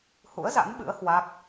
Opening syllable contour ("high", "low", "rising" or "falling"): rising